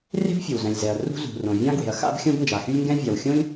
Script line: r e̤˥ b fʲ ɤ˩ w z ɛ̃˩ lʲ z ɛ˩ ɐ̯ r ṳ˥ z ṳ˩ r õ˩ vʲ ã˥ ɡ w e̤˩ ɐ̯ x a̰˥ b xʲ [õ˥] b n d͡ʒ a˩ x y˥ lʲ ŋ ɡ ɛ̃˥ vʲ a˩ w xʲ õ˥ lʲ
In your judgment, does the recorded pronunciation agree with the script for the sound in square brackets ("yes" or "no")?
yes